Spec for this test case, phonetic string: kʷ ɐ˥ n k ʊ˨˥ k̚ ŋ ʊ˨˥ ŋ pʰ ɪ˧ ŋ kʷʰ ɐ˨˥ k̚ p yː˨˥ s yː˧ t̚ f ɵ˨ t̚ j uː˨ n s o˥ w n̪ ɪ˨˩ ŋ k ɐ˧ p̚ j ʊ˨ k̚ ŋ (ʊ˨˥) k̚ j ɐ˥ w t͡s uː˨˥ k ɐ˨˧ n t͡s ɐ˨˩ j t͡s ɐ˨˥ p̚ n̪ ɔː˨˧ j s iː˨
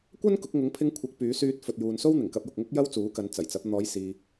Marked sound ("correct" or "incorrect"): incorrect